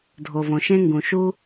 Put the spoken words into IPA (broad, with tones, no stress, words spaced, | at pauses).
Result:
dʱo˩võ˩ʃẽ˥ŋɡũ˩ ʃu˥